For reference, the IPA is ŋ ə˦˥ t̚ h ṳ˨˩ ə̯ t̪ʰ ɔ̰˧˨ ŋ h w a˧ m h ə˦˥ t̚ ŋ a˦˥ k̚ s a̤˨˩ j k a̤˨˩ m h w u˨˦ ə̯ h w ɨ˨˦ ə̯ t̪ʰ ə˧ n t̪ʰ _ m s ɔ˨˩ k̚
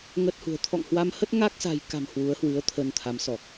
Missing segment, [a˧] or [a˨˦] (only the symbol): a˨˦